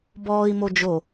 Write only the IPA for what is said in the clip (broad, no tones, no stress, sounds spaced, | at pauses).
b ɔː i̯ m o d͡ʒ o